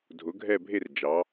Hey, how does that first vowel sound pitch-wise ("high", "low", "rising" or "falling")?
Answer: rising